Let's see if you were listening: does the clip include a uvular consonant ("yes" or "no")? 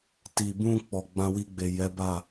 no